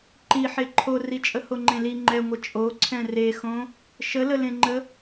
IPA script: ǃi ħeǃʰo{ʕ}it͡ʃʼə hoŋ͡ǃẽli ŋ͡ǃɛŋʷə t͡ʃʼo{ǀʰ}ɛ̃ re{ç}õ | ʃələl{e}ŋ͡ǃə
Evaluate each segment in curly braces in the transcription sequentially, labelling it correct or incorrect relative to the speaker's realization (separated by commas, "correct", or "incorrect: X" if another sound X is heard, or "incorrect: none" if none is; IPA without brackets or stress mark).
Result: incorrect: r, correct, incorrect: x, incorrect: ẽ